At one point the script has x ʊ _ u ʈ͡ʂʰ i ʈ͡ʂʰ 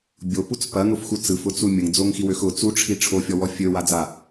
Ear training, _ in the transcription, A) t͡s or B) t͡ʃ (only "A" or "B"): A